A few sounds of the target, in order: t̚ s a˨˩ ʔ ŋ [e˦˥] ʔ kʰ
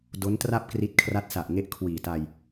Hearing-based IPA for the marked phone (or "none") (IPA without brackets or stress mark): e˦˥